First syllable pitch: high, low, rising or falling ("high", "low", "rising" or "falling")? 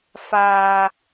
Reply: high